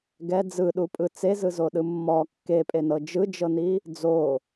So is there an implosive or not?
yes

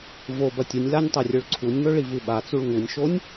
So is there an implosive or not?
yes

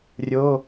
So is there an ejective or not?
no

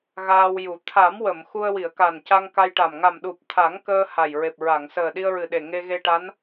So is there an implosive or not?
yes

